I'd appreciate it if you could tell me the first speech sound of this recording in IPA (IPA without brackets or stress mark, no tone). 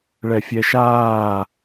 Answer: ɭ